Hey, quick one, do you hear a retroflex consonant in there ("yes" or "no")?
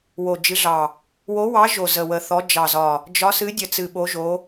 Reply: no